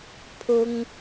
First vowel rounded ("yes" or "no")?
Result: yes